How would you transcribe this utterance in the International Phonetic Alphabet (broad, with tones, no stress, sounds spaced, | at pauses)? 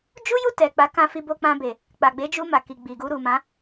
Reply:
d͡ʒ u˦ j u˦˨ t ɛ˨ k͡p a˨˦ k ã˧ f i˧ b o˧ k͡p ã˧ b e˨ | k͡p a˨ ɡ͡b e˨˦ d͡ʒ u˧ m a˨ k i˨ ɡ͡b i˨ ɡ u˧ ɾ u˨ m ã˨˦